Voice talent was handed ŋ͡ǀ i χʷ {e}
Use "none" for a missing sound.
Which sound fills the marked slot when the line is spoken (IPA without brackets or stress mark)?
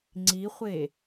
e